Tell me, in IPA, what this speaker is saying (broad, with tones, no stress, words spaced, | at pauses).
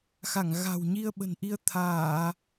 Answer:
xa˧˩ŋɣa̤˨˩wɲi˧ə̯ ɓə̤˨˩nʔi˧ə̯ t̪ʰaː˧˩˨